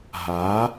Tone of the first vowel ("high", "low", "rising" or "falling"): rising